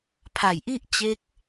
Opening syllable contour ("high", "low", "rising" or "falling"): low